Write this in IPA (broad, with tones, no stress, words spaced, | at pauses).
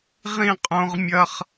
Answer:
ʁĩ˦˨qʼõ˦ʁmʲɐ˦χ